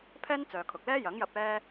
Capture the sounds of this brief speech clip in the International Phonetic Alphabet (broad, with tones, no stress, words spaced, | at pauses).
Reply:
pʰɛː˥nt͡sœː˨ kʰʊ˨k̚lɛː˥jɐ˨˥ŋjɐ˧p̚ ɛː˧